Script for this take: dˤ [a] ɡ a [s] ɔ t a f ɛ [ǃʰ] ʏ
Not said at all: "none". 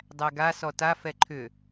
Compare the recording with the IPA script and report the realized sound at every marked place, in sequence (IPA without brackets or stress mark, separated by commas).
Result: æ, s, ǃʰ